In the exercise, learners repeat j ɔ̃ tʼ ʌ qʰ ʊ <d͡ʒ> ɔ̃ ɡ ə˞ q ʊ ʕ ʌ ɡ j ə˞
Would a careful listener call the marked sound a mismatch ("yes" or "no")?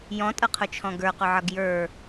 yes